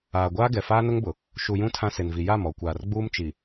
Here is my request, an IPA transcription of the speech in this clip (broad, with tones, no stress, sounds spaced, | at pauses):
aː˨ ɡʷ aː˦ ɡ ɛ˨ f aː˦ n ʊ˦ ŋ b ʊ˨ | ʃ u˨ j ũ˦ tʰ ã˦ s e˨ n v i˨ j a˦˨ m ɔ˨ kʷ aː˨ r ɡ͡b uː˦ m t͡ʃ i˨